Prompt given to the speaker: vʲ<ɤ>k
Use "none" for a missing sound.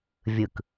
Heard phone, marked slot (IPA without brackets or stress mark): ɯ